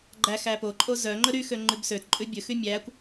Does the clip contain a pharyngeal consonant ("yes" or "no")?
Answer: no